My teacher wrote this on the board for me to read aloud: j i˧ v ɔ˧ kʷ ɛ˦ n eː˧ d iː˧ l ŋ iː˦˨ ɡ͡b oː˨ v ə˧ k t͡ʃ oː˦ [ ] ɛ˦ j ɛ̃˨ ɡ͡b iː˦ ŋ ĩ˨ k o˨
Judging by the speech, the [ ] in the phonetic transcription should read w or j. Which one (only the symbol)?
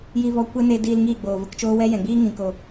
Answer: w